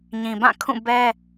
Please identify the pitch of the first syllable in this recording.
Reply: low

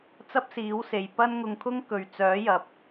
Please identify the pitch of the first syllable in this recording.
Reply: high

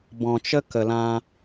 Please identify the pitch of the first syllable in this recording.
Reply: low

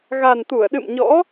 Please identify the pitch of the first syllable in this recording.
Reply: low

